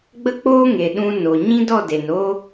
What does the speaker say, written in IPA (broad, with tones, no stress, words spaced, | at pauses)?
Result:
ɡ͡bə˦k͡poː˦ ŋe˨ɗũ˧no˨ ɲĩ˦dɔ˦˨de˨n o˦